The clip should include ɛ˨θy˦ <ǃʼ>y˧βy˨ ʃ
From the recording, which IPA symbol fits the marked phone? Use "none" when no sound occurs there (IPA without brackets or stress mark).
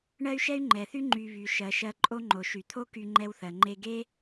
ŋ͡ǃ